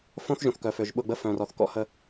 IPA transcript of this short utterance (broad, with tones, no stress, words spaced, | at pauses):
fõ˦θ ʒũ˨θkœ˨fø˨ʒ ɓʊ˦˨ɡ͡bə˦ fœ̃˨rɔ˨θkɔ̰˦hə˦